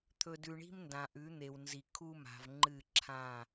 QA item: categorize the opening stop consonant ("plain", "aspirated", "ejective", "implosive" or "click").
aspirated